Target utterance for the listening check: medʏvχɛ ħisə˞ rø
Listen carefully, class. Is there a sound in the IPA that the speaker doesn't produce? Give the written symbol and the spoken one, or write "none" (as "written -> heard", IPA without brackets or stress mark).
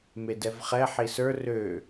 ʏ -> ɛ